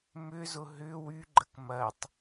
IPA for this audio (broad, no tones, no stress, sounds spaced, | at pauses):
m ʏ z ʊ ɦ ʏ w y ɡ͡ǃ ə k m ɐ tˤ